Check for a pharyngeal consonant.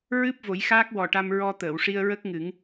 absent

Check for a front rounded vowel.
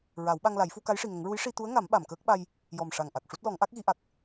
absent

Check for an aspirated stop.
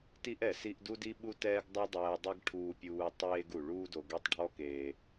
present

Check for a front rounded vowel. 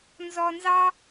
absent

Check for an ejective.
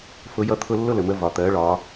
absent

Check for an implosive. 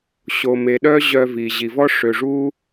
present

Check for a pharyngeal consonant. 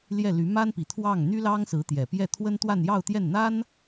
absent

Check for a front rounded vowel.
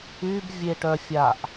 present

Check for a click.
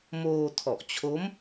absent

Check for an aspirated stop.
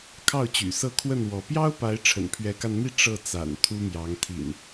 present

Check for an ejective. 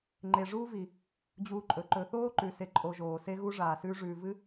present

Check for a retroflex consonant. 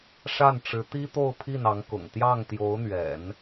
present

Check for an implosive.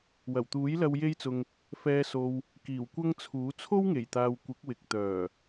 absent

